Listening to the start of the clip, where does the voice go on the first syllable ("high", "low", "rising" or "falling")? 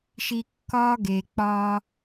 low